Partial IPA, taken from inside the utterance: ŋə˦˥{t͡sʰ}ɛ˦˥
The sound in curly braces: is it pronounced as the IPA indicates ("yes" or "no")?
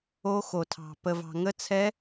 yes